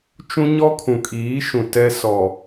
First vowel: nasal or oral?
nasal